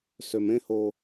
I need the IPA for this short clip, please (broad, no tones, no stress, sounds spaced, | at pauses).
s ø m ẽ h o